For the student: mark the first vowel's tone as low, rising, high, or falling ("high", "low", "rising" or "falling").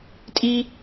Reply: high